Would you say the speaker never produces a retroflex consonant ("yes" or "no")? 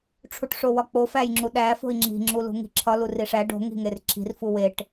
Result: no